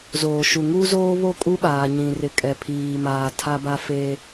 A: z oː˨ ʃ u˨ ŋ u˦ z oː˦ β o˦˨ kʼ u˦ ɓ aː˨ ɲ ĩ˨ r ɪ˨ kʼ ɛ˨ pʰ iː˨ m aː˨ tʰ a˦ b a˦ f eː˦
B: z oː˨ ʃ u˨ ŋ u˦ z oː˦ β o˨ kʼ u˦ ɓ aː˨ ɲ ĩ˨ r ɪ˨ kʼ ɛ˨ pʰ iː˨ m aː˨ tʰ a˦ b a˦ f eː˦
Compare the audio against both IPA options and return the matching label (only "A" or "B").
A